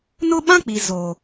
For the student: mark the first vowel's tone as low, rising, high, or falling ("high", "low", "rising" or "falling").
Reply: high